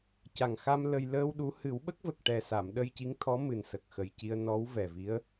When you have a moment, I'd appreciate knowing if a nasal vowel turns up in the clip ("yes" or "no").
no